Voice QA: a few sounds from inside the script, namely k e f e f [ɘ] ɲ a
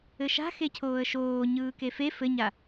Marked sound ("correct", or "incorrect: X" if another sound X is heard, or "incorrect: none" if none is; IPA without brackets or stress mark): correct